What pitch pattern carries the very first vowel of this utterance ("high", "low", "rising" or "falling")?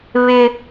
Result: high